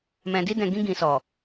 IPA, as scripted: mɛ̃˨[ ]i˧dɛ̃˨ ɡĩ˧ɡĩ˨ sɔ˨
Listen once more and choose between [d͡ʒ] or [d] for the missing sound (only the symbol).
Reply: d